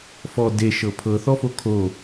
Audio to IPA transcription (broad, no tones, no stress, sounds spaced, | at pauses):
f ɔ d e ʃ ɤ pʰ ɤ θ ɔ f o kʰ o